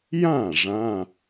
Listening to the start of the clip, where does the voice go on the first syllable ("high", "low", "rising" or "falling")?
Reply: falling